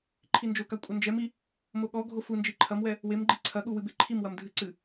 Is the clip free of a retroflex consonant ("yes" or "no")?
yes